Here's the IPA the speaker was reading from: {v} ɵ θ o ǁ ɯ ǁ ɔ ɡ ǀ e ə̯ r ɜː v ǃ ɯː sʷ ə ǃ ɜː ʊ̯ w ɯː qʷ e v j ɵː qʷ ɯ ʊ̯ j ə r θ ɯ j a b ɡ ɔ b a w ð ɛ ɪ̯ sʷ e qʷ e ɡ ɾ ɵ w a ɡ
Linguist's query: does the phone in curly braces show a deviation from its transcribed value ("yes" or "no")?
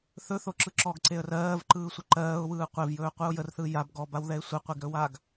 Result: yes